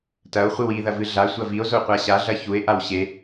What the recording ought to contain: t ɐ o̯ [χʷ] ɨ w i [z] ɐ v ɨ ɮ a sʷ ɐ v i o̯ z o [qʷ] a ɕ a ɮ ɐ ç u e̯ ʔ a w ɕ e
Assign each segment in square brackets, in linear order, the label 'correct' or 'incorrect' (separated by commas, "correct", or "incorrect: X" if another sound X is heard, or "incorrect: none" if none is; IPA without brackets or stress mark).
correct, incorrect: ð, correct